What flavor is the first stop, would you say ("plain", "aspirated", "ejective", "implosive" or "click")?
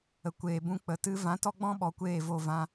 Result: plain